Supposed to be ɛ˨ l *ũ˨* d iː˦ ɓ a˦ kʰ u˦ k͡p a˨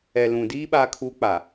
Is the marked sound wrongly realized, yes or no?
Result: no